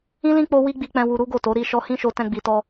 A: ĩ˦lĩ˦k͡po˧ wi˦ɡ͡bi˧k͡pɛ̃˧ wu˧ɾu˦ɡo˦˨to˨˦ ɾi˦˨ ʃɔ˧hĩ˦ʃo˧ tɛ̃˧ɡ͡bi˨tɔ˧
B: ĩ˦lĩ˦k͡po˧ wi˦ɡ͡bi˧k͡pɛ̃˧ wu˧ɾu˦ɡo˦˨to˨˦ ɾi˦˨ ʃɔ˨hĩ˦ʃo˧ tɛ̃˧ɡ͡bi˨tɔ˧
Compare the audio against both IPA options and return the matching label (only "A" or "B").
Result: A